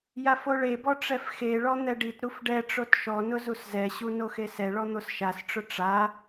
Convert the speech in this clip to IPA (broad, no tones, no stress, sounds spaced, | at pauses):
j a f o ɭ e b ɔ ʈ͡ʂ ɛ f x e ɭ ɔ n̪ ɛ ɖ i t ɾ u f ɖ ɛ ʈ͡ʂ o t ʃ ɔ n ʊ z u s z ɛ ɕ u n o x e s ɛ ɭ ɔ n̪ o s ʃ a s ʈ͡ʂ ʊ ʈ͡ʂ a